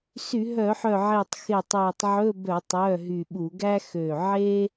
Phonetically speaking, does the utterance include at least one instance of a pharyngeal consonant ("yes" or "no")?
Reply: yes